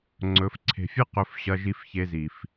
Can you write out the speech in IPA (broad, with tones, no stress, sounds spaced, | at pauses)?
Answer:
ŋ͡ǀ ɵ˨˦ f ǀʰ e̤˨ fʲ ɨ˦ q ɵ˨˦ f ɕ ɐ˧ ʒ i˧ f ç e˧ z i˨ f